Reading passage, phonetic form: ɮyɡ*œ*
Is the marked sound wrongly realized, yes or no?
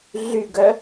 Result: no